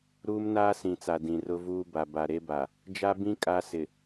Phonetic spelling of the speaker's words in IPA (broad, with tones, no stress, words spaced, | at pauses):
ɾuː˦mnaː˦sĩ˨t͡sa˨ dĩ˨rʊ˦vuː˦ ba˨ba˨ɾe˦ba˨ | d͡ʒa˦bĩ˦ kʼa˦sɪ˨